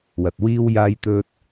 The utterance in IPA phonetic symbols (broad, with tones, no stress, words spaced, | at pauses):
wɐ˨t̚wiː˥w jaː˧jt̪ɵ˧t̚